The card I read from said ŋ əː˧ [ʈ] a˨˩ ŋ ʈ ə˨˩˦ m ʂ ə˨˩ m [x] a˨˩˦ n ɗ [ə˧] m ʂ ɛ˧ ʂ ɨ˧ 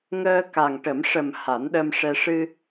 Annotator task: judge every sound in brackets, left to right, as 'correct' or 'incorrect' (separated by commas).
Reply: incorrect, incorrect, correct